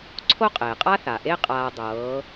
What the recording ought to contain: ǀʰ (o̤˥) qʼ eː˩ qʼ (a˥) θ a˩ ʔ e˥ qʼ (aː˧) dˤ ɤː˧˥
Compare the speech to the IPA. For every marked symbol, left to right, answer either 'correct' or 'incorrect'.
incorrect, correct, correct

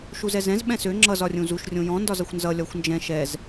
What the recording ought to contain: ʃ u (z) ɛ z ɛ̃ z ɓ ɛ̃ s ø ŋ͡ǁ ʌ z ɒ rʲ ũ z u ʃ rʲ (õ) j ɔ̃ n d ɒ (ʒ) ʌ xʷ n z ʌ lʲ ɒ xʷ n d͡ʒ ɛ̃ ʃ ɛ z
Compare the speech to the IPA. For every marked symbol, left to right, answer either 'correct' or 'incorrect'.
correct, correct, incorrect

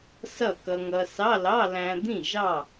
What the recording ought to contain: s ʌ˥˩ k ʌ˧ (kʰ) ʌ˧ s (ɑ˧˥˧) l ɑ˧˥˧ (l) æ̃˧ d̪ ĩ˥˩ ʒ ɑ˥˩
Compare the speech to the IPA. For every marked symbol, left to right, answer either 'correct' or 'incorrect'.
incorrect, correct, correct

